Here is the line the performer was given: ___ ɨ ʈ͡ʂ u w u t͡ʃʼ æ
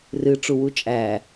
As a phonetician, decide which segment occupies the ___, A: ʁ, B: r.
B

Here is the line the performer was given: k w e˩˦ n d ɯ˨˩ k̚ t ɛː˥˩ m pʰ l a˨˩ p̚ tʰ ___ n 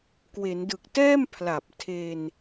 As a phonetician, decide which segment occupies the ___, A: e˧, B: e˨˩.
A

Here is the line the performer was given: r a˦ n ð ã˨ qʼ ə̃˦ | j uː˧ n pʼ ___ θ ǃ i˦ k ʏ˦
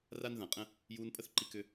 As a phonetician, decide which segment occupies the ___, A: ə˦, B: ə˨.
A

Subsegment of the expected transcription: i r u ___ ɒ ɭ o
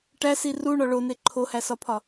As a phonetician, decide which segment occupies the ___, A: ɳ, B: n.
A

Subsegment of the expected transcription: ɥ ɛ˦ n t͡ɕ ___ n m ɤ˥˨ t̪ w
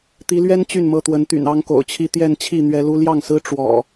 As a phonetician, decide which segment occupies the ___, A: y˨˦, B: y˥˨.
B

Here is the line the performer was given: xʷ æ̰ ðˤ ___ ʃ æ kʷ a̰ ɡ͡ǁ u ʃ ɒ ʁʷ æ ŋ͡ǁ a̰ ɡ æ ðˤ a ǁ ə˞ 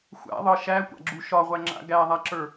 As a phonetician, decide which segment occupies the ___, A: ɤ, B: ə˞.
A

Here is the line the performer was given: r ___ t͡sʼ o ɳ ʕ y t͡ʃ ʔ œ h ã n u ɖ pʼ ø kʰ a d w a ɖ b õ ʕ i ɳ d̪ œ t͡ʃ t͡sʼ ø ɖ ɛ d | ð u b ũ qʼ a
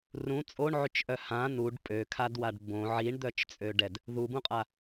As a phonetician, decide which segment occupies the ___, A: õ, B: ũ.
B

